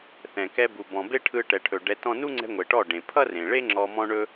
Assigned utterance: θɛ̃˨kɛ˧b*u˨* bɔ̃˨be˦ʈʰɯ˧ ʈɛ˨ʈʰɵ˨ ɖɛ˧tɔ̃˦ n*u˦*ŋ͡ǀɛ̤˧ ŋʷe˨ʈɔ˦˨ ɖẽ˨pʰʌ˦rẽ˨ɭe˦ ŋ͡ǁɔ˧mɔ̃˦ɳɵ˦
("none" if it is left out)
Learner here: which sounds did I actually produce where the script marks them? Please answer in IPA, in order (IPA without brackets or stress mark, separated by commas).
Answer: u˨, u˦